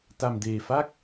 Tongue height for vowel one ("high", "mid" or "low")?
low